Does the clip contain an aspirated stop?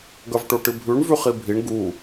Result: no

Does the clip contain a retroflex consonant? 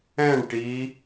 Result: yes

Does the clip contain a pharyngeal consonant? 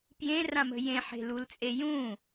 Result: yes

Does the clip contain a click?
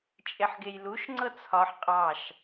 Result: yes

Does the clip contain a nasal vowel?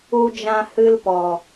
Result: yes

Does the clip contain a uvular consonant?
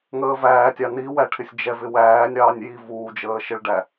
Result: no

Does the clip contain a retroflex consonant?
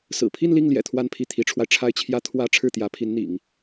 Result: yes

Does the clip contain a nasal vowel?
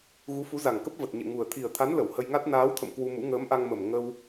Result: no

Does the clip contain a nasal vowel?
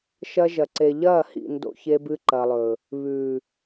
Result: no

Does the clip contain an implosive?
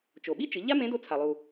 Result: yes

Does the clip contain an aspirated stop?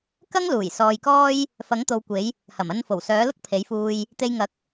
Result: yes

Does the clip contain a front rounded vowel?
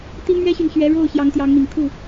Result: yes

